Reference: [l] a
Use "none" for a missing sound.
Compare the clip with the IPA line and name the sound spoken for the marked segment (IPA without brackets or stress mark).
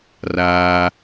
r